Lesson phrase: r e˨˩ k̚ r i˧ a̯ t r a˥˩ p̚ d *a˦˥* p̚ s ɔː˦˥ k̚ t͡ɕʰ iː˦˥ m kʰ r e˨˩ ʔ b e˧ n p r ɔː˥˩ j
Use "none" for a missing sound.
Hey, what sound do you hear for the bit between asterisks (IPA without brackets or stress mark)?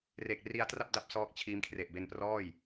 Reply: a˦˥